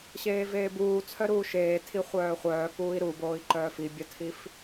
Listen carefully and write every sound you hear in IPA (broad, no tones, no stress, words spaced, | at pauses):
ɕeːveːbuː t͡sʰœɾuːʃeː tʰiχʷœːχʷœː kuːi̯ɾuboːi̯ǃœː fibʲœtʰif